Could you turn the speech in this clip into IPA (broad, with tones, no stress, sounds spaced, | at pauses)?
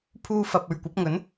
pʰ uː˧ f ɐ˨ p̚ ɵ˨ ɥ kʷ ɐ˨˥ p̚ ŋ ɵ˨˥ n